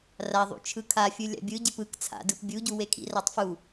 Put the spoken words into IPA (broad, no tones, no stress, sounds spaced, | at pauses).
r a ðˤ ṵ t͡ʃʰ ɯ kʰ a fʲ ɯ lʲ a̰ bʲ ɯ ɟ e p ɯ k t͡sʰ a̰ d ɯ p bʲ u ɟ u w e kʰ ḭ r a tˤ f u